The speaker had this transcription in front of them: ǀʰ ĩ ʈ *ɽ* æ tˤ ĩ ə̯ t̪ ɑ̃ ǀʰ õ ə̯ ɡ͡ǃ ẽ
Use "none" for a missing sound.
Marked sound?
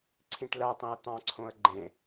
l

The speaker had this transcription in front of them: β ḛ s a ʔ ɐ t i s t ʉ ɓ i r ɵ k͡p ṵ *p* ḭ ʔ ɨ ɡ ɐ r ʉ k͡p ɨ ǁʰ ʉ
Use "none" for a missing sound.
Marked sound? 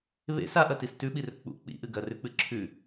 k͡p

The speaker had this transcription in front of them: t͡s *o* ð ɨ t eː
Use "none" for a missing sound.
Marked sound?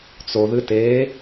o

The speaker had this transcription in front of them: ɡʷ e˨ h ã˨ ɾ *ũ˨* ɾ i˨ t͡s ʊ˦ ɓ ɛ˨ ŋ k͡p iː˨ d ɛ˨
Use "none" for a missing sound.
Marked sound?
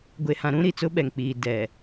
ũ˦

